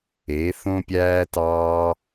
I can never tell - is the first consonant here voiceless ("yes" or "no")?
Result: yes